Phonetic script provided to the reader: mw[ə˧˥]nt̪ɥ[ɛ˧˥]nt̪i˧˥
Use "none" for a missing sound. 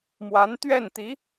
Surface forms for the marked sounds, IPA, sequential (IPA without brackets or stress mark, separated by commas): a˧˥, ɛ˥˩